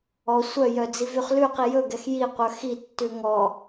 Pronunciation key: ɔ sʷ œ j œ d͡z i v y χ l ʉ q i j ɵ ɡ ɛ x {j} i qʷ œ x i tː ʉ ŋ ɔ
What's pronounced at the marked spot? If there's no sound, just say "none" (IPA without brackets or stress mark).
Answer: j